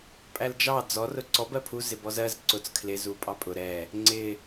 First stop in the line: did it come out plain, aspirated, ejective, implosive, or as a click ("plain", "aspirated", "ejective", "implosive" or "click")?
ejective